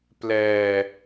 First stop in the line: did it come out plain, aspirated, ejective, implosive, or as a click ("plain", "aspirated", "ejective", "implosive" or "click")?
plain